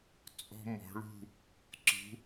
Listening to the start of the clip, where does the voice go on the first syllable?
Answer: high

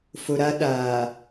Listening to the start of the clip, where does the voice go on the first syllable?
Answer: low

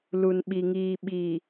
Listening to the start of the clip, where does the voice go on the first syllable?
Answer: low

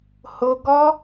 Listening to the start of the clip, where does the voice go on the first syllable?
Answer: low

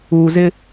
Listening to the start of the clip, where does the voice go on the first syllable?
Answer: low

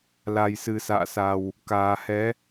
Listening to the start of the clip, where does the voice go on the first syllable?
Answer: low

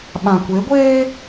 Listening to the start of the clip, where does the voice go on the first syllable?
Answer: low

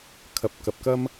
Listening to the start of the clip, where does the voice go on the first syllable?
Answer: low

